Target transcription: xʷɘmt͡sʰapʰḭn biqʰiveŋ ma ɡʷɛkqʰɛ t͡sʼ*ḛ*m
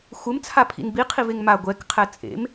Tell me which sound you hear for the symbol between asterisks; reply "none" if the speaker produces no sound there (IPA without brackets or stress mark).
ḛ